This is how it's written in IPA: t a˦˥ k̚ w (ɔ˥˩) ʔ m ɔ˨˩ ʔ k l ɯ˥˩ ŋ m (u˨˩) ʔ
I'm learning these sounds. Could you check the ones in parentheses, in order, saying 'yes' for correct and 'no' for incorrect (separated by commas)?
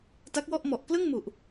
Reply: yes, yes